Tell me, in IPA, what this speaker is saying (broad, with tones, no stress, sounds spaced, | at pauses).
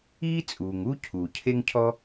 iː˥ t͡sʼ uː˩ ŋ u˥ cʰ uː˩ cʰ e˥ ŋ cʰ ɔ˥